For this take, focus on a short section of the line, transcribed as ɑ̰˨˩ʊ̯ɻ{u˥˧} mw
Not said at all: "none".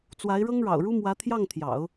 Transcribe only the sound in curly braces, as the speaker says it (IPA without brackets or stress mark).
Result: u˥